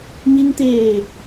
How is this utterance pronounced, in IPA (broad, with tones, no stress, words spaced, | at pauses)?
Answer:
ɲi˧ŋt̪eː˧˩